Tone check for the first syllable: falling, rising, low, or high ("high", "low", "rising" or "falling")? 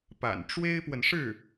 low